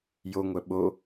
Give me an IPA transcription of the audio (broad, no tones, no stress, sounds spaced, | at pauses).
j o ŋʷ œ ɓ o